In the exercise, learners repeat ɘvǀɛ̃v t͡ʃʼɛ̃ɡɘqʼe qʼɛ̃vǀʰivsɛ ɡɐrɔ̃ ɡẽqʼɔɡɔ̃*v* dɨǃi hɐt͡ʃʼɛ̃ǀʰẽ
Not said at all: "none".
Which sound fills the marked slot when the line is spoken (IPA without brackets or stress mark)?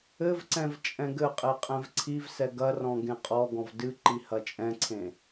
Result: v